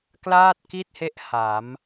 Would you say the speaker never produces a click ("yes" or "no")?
yes